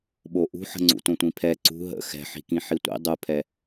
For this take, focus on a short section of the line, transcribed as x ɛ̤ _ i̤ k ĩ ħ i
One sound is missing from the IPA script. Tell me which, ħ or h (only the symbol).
ħ